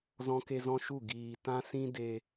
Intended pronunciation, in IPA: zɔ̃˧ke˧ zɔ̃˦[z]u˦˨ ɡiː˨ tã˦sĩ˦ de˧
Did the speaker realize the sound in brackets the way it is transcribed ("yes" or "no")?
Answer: no